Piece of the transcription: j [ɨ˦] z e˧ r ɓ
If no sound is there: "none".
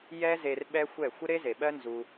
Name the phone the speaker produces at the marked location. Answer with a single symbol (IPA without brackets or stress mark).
ɛ˦